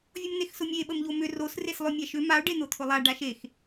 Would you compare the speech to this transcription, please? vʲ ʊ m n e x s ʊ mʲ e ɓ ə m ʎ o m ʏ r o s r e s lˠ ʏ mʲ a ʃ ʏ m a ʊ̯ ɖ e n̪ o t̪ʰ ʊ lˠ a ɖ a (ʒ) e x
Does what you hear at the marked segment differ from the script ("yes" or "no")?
yes